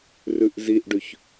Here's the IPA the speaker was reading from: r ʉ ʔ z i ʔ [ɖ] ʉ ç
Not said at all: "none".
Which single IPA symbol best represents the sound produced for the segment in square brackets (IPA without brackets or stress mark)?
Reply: ɖ